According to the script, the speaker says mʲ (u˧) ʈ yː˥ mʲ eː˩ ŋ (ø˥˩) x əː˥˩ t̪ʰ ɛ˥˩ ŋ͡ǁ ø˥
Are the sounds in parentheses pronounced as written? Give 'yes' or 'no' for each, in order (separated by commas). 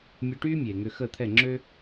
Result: yes, no